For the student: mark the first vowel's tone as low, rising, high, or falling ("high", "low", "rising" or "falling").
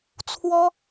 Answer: high